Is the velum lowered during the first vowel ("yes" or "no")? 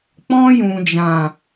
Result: yes